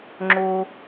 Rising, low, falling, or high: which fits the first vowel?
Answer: high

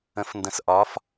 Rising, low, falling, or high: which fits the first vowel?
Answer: rising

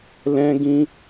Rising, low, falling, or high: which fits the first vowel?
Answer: high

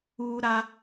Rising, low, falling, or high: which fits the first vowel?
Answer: high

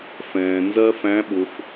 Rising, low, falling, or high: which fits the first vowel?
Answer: low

